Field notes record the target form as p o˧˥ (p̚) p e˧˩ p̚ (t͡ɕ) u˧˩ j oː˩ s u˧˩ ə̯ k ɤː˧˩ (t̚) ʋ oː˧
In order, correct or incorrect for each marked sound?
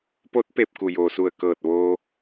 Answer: incorrect: t̚, incorrect: k, correct

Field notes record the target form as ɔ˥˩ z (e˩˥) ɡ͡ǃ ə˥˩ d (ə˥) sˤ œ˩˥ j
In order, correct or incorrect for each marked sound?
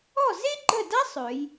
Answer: incorrect: e˥, incorrect: a˥

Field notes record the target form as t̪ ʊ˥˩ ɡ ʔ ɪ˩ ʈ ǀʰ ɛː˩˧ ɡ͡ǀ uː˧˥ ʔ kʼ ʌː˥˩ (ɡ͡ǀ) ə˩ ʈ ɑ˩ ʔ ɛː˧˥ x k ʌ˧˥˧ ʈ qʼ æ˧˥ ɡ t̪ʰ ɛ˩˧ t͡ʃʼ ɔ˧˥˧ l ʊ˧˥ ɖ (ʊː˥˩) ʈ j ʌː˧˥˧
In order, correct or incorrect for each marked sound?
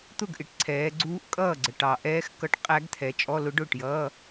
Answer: correct, correct

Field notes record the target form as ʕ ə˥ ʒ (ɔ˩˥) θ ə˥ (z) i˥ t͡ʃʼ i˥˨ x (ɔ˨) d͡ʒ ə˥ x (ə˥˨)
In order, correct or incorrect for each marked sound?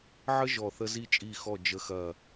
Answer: incorrect: ɔ˥˨, correct, incorrect: ɔ˥˨, incorrect: ɐ˥˨

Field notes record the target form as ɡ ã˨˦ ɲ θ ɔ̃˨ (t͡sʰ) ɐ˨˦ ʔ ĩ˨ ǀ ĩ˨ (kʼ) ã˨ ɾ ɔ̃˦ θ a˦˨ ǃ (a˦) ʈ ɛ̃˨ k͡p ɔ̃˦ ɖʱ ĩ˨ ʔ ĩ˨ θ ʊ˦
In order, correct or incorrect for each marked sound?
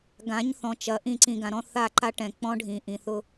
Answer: incorrect: t͡ʃ, incorrect: ɡ, correct

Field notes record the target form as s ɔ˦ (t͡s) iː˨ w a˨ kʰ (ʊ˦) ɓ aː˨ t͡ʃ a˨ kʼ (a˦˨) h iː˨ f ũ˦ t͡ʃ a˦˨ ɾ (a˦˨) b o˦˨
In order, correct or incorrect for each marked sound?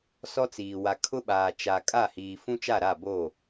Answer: correct, correct, correct, correct

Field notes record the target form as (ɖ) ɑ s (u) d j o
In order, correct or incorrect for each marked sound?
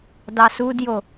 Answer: incorrect: d, correct

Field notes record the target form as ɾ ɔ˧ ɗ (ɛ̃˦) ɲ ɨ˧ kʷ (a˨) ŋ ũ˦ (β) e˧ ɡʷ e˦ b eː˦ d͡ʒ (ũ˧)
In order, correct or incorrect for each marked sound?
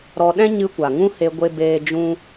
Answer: correct, correct, incorrect: h, incorrect: ũ˦

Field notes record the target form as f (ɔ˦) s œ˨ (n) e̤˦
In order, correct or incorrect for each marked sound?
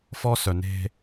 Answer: correct, correct

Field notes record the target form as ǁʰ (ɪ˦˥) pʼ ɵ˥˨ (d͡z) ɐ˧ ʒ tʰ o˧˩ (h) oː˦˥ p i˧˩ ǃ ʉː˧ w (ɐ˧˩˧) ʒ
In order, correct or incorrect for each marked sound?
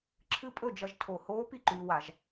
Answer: incorrect: ɨ˦˥, incorrect: d͡ʒ, correct, incorrect: a˧˩˧

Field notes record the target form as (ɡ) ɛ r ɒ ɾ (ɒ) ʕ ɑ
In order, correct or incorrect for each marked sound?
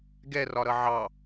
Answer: correct, incorrect: ʌ

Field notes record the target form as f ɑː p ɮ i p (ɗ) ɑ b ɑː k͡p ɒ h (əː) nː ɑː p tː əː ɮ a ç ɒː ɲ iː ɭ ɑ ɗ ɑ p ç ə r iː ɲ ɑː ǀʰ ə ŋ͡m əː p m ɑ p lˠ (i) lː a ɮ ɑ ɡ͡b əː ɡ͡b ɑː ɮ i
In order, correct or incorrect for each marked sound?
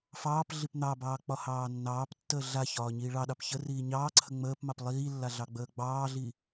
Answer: incorrect: n̪, incorrect: ɑː, incorrect: iː

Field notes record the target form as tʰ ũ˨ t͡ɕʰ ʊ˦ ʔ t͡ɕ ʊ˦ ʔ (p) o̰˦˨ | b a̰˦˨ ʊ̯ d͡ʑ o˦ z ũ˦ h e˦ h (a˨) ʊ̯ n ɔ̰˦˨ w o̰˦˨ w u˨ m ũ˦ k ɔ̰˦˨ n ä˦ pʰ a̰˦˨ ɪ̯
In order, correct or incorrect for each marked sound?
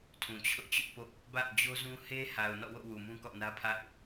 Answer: correct, correct

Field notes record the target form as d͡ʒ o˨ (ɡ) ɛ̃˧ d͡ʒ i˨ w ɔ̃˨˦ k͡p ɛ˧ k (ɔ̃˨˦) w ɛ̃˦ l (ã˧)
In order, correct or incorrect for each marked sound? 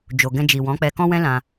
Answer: correct, incorrect: ɔ̃˦, correct

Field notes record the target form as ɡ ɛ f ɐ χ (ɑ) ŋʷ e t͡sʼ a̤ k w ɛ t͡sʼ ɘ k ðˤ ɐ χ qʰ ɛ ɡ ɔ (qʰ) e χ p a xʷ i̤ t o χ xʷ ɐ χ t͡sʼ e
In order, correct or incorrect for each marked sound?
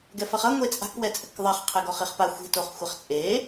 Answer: incorrect: ɐ, incorrect: χ

